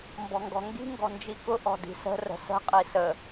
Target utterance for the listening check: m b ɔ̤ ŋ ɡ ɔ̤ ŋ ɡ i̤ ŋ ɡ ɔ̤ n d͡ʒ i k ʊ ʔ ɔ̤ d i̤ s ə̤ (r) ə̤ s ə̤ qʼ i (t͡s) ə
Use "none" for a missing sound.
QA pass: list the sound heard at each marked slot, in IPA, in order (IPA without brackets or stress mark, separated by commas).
r, s